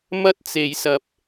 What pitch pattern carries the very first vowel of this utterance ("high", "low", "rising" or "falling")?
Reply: high